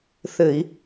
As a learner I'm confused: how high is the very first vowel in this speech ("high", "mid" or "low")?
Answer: mid